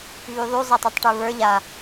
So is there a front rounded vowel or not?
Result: yes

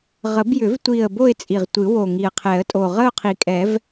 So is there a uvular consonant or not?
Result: yes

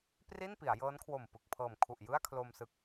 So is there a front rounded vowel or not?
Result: no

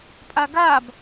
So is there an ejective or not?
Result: yes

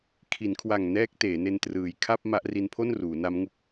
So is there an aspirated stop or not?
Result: yes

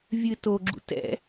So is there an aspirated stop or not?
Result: no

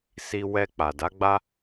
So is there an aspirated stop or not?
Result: no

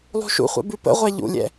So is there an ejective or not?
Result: no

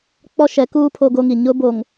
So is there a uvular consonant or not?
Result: no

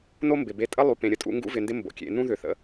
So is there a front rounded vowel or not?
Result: yes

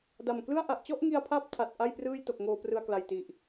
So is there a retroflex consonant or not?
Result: no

